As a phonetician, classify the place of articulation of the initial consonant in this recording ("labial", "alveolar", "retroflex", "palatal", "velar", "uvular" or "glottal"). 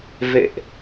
labial